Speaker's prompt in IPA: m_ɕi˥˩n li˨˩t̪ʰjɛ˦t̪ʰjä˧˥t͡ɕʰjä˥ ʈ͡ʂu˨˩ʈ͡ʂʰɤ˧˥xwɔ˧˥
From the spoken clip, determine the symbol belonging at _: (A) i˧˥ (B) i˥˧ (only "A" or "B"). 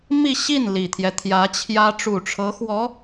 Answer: B